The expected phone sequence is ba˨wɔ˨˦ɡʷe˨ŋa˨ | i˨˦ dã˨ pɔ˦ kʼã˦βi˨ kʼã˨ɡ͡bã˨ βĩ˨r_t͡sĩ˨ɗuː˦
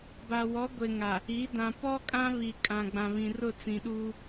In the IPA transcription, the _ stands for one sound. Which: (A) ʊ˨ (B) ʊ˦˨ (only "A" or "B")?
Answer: B